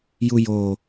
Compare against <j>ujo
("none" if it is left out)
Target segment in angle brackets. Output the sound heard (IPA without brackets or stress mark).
j